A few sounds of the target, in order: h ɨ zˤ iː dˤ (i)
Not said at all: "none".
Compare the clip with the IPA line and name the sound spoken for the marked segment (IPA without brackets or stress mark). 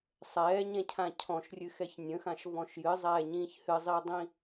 ĩ